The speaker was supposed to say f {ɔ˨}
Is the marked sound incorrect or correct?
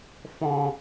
incorrect